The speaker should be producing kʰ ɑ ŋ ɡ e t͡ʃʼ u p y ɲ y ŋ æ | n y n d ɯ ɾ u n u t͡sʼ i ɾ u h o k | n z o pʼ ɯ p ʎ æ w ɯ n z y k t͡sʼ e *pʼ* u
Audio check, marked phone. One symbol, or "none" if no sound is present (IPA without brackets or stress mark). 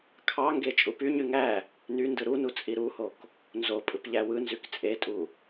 tʼ